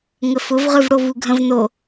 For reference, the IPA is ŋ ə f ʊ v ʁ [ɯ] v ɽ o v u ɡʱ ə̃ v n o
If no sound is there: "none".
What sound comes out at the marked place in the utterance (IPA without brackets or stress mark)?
ɯ